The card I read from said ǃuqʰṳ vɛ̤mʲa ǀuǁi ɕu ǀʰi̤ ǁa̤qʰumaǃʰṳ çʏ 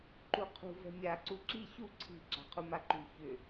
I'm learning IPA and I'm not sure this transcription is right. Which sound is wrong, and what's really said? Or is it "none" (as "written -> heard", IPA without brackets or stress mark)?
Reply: ǃʰ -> ǃ